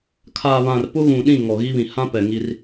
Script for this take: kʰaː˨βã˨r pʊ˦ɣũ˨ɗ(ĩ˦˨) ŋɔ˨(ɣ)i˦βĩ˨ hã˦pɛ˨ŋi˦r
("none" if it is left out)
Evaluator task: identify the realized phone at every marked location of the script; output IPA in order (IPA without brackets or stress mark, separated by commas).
ĩ˦˨, ɣ